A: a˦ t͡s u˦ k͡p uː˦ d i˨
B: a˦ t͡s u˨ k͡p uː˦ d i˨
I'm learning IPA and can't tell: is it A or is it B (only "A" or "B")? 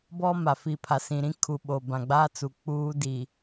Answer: B